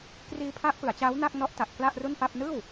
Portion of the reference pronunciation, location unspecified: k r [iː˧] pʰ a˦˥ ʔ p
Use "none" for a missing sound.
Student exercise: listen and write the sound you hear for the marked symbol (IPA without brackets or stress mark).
iː˧